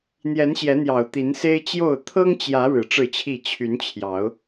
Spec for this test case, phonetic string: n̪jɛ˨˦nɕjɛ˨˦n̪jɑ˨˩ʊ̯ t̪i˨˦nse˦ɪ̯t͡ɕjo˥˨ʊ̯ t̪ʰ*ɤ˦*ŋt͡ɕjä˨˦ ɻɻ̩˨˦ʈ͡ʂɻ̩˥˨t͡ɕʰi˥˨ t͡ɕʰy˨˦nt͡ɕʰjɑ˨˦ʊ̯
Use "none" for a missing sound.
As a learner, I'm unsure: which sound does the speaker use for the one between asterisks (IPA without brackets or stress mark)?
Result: ɤ˦